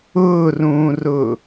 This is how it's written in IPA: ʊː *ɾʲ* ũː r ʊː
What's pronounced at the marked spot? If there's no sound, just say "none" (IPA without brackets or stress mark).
r